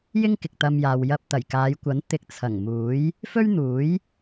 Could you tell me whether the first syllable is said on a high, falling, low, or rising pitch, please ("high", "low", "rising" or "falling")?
high